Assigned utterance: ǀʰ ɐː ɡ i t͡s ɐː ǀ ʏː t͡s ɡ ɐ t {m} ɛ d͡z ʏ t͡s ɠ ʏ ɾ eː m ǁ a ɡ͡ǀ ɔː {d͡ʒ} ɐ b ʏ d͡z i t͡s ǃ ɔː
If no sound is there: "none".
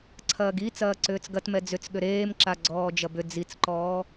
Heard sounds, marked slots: m, d͡ʒ

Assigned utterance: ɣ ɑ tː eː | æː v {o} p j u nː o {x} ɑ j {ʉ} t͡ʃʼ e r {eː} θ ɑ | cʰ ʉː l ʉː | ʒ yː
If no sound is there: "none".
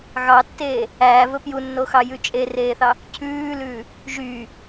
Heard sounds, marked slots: ɵ, x, ʉ, eː

